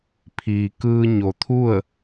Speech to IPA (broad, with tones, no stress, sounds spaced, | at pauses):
pʰ iː˩ k ɯː˧ ɲ o˩ t̪ʰ u˥˨ ə̯